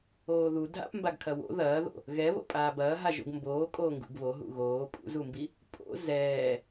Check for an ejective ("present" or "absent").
present